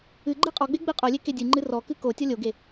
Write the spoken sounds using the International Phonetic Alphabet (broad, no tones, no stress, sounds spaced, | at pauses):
ɨ ɡ͡ǃ ɨ qʼ ɔ ɡ͡b e ɡ͡b ɨ qʼ o lʲ e k e dʲ ɨ ŋ͡ǃ ɨ r ɔ k ɨ k o tʲ ɔ lʲ o ɡ e